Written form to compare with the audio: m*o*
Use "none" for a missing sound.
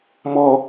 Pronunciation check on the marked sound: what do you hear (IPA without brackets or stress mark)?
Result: ɔ